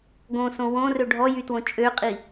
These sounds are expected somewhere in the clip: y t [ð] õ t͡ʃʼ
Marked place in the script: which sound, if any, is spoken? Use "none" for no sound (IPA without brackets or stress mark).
w